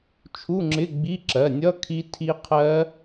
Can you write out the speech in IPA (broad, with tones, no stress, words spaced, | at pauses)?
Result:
t͡ʃʰu˧˥˧ŋ͡ǁɪ˧˥˧ɡ͡bi˧˥˧ ǁɜ˩˧˩nʲʌ˧˥˧ kʰi˦˥tʰi˦˥ qʰɜ˦˥